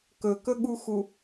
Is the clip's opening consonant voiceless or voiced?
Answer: voiceless